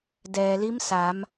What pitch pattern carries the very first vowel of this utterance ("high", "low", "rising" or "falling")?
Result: low